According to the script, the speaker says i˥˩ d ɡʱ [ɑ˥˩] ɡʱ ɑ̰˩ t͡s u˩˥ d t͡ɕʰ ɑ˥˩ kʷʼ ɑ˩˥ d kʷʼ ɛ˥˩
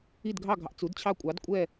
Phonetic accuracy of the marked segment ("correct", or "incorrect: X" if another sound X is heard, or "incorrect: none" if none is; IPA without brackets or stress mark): correct